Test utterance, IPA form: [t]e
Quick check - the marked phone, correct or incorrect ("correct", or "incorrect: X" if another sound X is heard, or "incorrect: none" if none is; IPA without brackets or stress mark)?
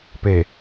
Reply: incorrect: p